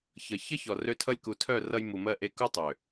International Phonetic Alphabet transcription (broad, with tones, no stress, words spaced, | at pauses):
çʌ˨ çʌ˦çɔ˨rø˧tʰʌ˧lʲ ku˨tʰœ˦˨rʌ˧j mu˨mɜ˧ ʔe˧ku˦ tˤø˨